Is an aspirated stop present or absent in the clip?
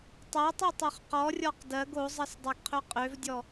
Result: present